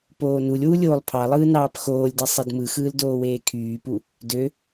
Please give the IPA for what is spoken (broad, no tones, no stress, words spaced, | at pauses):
poːnulʲwu lʲoːlˠpʰɑlˠɯː nɑːpxoːlʲdi sˤedmɯxɯːl doːweːkʰyːpu | dø